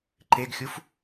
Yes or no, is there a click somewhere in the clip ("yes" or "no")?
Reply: yes